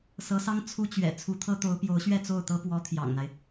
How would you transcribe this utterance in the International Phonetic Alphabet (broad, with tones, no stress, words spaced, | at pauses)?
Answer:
sɤ˧˥sɑ˥ŋ t͡sʰu˥t͡ɕɥɛ̰˨˩ t͡sʰu˧˥t̪ʰɤ˥t̪o˧˥ʊ̯ pjo˧˥ʊ̯ɕɥɛ˥˧t͡so˥˩ʊ̯t̪ɤ˥ pwɔ˧˥ t̪ʰjɑ̰˨˩ŋn̪a˦ɪ̯